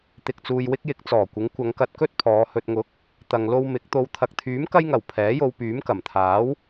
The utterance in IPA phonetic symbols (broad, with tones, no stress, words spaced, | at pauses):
t̪ɪ˨k̚t͡suː˨jwɪ˧k̚jɪ˨˥k̚ t͡sɔː˨˩kʷɪ˨˥ŋkʷɐ˨˧ŋkɐ˧t̚ kɵ˥t̚pʰɔː˨˧ hɵ˨t̚ŋʊ˨˥k̚ | t̪ɐ˨ŋlo˧w mɪ˨˥k̚ t̪o˨˧wt̪ʰɐ˨k̚t̪ʰyː˨˥m kɐ˧jŋɐ˨˩w pʰɛː˨˥jo˧w pyː˨˥mkɐ˨˩mt̪ʰaː˨˥w